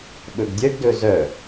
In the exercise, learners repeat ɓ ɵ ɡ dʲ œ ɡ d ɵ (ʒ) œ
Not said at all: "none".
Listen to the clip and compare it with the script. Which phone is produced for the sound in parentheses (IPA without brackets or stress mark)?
z